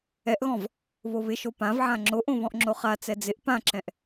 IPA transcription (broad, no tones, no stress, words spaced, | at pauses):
ɛʔɣɔ̃v | βoβɪʃo pãvʕã ŋ͡ǁoʔõ βɔ̃ʔŋ͡ǁoχat͡sɛ d͡zɪʔ pãǁɛ̃ʔ